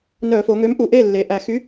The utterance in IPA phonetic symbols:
n œ˧˩˧ f o˩˧ ŋ ø˨˥ m ʔ u˨˩ ʔ e˥˨ lː e˨˩ ʔ æ˧˩˧ x y˨˥

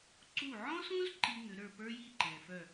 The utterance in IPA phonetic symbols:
ǀ u˥˩ ʕ ɔ̃˥ s ũ˥ z ǃ i˥ ŋ ʏ˩˥ ɾ ə˞˥˩ p ə˞˥ j i˥˩ ǃ ɛ̃˩ f œ˥˩

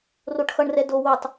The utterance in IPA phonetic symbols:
r o ʈ x ʌ ɳ r ɛ d o w o tˤ

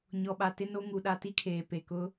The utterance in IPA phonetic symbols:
ɲ ɔ˨ ɓ a˨ t ɪ˦ n o˦ ŋ u˨ ɗ a˦ t i˦ kʰ eː˨ p e˨ k ʊ˦

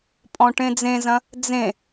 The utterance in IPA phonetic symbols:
pʼ ɔ̃ ʈ ẽ d͡z ẽ z ɐ̃ | d͡z ẽ

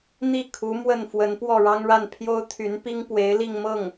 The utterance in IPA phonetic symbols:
n̪ i˥˩ kʰ u˧˥ m w ə˥˩ n f w ə˧˥ n p w ɔ˥˩ ɻ ɑ˥ ŋ ɻ a˥˩ n pʰ j o˥ ʊ̯ t̪ʰ y˧˥ n p i˥ ŋ p w e˧˥ ɪ̯ l i˥˧ ŋ m ɤ˥˩ ŋ

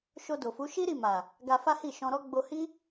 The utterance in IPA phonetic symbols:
ʃ o˧ d o˨ f u˨˦ ʃ i˦ ɾ i˦˨ m a˨ | ɡ a˧ f a˦ h i˦˨ ʃ ɔ̃˧ ɾ ɔ˦ ɡ͡b o˧ h i˦

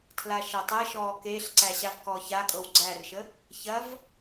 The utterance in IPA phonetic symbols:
tʰ l a ʃ ɐ tˤ ɛ ʃ ɔː k e ɬ ǀ æ ɕ a v k ɔː ç a kʼ ɤ w ɡ͡ǀ æ r ʃ ə | ç ɐ v

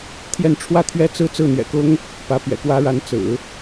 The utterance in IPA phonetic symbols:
t̪ʰ j ɛ˥˧ n ʈ͡ʂʰ w ä˥˩ t̪ʰ ɥ ɛ˥ t͡s ɹ̩˥˧ t͡s ɹ̩˥˩ n̪ ɥ ɛ̰˨˩ k ʊ˥ ŋ | p ä˧˥ p ɥ ɛ̰˨˩ k w ä˥ ɻ a˧˥ n t͡s ɹ̩˨˩˦

